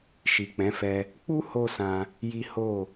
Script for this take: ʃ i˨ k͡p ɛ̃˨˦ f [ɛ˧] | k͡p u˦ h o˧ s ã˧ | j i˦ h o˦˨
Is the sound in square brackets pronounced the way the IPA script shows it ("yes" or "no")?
yes